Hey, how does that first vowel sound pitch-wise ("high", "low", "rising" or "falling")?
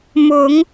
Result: rising